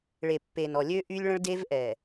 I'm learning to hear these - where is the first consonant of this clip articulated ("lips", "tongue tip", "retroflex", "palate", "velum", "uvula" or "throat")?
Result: retroflex